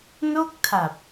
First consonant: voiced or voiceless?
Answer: voiced